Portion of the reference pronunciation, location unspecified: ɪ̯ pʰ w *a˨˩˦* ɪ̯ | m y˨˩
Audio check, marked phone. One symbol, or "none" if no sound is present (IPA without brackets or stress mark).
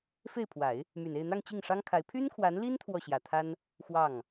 a˨˩˦